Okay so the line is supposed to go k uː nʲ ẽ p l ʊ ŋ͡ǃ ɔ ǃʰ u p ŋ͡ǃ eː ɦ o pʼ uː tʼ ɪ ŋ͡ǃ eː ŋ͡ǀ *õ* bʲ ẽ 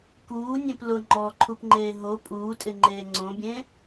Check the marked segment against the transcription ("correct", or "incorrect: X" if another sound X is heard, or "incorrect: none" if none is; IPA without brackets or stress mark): correct